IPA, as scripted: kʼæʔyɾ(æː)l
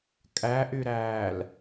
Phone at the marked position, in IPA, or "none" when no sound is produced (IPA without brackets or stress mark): æː